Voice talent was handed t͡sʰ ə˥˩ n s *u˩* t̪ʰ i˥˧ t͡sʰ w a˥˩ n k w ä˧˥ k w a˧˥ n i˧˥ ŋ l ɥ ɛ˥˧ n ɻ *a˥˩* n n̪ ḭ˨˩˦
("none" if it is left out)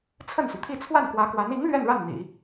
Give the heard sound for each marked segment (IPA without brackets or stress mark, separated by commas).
u˩, a˥˩